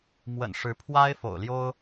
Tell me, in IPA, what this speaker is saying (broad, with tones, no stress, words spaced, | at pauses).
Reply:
mwə̰˨˩n ʂɻ̩˧˥ pʰwa˥ɪ̯fo̰˨˩ʊ̯ljo˥ʊ̯